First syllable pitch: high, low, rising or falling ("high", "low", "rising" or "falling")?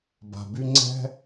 low